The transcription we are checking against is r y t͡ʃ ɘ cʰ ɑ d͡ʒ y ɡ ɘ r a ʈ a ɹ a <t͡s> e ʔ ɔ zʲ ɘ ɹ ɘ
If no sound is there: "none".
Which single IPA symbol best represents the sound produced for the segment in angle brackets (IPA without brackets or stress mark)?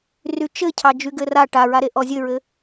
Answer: ɾ